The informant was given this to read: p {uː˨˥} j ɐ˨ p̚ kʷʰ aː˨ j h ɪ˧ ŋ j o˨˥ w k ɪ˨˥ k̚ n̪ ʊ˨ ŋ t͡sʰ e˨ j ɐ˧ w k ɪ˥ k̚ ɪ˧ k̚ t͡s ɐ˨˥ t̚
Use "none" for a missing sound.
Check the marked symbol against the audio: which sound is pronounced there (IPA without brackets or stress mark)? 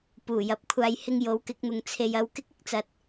uː˨˩